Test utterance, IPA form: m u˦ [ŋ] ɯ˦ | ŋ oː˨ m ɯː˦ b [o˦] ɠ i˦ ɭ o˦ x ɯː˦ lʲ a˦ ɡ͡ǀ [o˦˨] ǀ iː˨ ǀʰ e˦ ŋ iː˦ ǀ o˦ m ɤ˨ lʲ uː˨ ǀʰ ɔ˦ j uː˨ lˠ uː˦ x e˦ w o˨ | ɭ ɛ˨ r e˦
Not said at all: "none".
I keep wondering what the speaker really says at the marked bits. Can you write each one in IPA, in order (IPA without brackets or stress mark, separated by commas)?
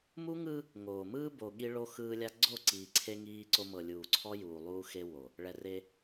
ŋ, o˨, o˦˨